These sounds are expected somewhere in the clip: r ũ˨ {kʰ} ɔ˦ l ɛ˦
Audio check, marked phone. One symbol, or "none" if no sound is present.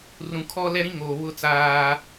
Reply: kʰ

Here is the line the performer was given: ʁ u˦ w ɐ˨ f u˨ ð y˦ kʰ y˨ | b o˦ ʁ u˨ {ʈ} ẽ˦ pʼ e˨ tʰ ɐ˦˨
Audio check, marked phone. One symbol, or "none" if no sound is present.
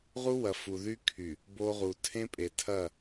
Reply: tʰ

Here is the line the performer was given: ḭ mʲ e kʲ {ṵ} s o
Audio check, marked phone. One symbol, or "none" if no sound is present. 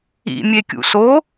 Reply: ṵ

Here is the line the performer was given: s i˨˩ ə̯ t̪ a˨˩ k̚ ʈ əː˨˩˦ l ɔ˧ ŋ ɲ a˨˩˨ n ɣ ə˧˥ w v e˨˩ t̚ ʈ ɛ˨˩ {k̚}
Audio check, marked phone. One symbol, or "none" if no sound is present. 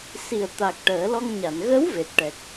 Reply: k̚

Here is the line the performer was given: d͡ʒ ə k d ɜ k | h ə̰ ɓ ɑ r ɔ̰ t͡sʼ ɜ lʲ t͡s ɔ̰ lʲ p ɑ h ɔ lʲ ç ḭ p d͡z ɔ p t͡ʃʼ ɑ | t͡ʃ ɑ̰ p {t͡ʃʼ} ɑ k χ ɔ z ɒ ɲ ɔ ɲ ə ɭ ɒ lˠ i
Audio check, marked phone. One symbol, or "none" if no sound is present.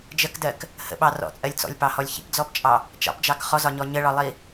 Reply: d͡ʒ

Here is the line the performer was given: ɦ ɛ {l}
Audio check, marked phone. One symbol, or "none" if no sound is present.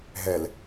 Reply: l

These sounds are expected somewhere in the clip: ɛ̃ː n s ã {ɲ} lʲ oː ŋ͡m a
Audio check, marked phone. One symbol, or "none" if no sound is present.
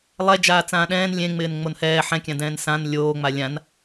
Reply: n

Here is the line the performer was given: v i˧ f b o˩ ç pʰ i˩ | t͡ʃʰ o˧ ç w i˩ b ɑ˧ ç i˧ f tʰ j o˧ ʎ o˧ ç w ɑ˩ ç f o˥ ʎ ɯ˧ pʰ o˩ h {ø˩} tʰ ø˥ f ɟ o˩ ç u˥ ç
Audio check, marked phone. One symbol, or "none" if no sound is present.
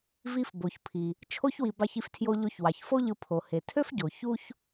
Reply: e˩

